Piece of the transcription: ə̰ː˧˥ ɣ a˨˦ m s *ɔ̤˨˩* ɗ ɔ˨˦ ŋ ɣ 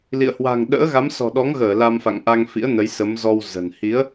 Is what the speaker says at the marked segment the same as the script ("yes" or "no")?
yes